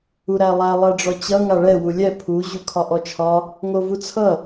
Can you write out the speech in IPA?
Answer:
u ɾ æ lˠ æ lˠ æ ɖ͡ʐ ɔ t͡ɕ ʌ ŋ a ɭ ɛ w u lʲ ɛ pʰ u ʑ u kʰ ɒ ʔ ɔ t͡ʃʰ ɒ | ŋ o v u t͡sʰ ʌ

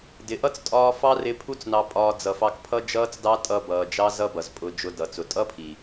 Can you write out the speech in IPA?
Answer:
d ɪ˨ ʔ ʌ˦ t͡s tʼ ɒː˧ f ɑ˦ r ɪ˧ pʰ u˦ t͡s n ɑ˧ pʼ ɒː˧ d͡z ʌ˨ f ɑ˧ k pʰ ʌ˦ d͡ʒ ʌː˦ t͡s d ɑ˦ tʼ ʌ˧ b ʌː˨ d͡ʒ ɑ˦ z ʌ˦ b ʌ˨ z pʼ ʊ˧ d͡ʒ ʊ˧ d ʌ˨ t͡s ʊ˨ tʼ ʌ˦ pʰ i˨

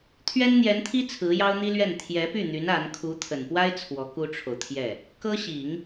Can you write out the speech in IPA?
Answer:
t̪ʰ ɥ ɛ˥ n n̪ j ɛ˧˥ n t̪ʰ i˥ t͡sʰ ɹ̩˧˥ j ɑ˥ ʊ̯ n̪ i˥ l ɥ ɛ˥˩ n t̪ʰ j ɛ˧˥ p y˥˩ n̪ y˧˥ n a˧˥ n kʰ u˧˥ t̪ʰ ə˨˩ n p w a˥ ɪ̯ t͡sʰ w ɔ˧˥ k u˥ ʈ͡ʂʰ o˨ ʊ̯ t̪ʰ j ɛ˥˩ | k ɤ˥ ɕ i˨˩˦ ŋ

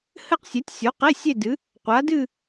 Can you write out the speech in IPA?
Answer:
h ɘ˥˧ q sʲ ɛ˨˥ tʲ sʲ o˨˥ q e˧˥˧ sʲ e˥˧ d ɨ˨˥ | qʷ a˨˥ d ɨ˥˧

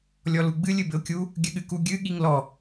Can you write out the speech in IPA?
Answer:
lʲ ɔ l u ɡ͡b ɨ lʲ ɨ b ɘ ʊ̯ kʲ u | ɡʲ ɘ ɠ ɨ k u ɡʲ ɨ ɠ i ŋ l ɔ

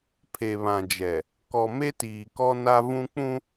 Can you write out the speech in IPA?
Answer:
pʰ e˨ β ã˨ d͡ʒ ɛ˨ | k ɔ˨ m e˦ t iː˨ k ɔ˦ n a˦ v ũ˦ k͡p ũ˦

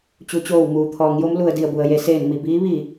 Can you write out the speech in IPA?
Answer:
t͡ɕ u˩˧ t͡ɕ oː˧˩ w m uː˩ t̪ʰ ɔː˩˧ ŋ j o˧˥ m l u˩ ə̯ d i˧˩ ə̯ b u˩ ə̯ j e˩˧ s eː˧˩ n m i˧˩ b iː˧˥ ʋ i˧˩

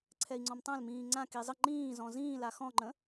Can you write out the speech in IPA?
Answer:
ǀʰ ɛ i̯ ŋ͡ǀ ɔ̃ m tˤ ã l m ĩː ŋ͡ǀ ã k i zˤ ə ŋ͡ǃ ĩː z ɔ̃ z ĩː l a x ɔ̃ ŋ͡ǃ ə̃

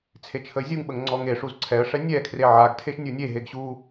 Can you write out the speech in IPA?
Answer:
t͡sʰ e t͡ʃʰ ə ɪ̯ zʲ u ŋ ɓ ə ŋ ŋ͡ǀ ɔ ŋ e ʂ u z ǀʰ ɛ ə̯ ʂ ɛ nʲ ɛ kʰ r e ʕ a ɡ tʰ e ʃ nʲ u nʲ e ɦ e ɡ ɕ u

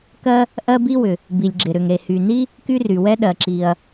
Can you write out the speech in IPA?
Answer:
k ɜ˥ | ʔ ɜ˥ b i˥ w ʏ˩ | b i˩ lʲ ɡ͡ǁ ɪ˩ ɾ ʏ˩ ŋ ɾ e˩ h y˩ n i˥ | k y˥ r y˩ w ɛ˥ ɗ ɜ˩ ǁ i˩ ɐ̯

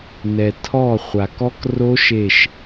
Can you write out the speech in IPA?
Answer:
n ɛ˩ tʰ ɔ˧˩ χʷ a˩ k ɔ˦˥ k r o˦˥ ʃ e˧˩ ʃ

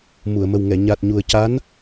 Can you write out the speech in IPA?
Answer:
m u˨˩˨ ə̯ m ə˨˩ w ŋ ɛ˨˩˨ ɲ a˨˩ t̚ ɲ u˨˩ ə̯ c a˧˥ n

